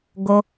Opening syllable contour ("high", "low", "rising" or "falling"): high